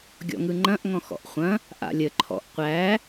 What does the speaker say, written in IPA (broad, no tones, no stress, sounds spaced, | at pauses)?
ɡʲ ɔ̰ ŋ ɯ ŋ͡ǃ ɐ̃ ʔ ŋ ɔ̃ x ɔ̰ ʔ χʷ ɐ̃ | ʔ a̰ lʲ ə ǃʰ ɔ̰ ʔ qʷ æ